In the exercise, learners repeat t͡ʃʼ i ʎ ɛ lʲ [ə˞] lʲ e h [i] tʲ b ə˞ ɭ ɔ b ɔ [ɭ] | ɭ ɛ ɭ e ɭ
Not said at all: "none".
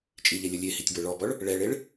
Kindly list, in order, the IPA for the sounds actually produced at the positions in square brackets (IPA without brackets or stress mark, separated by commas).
ʌ, i, ɭ